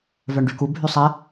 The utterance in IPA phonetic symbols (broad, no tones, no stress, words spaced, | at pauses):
vœɳɖyku bʱysˤɛ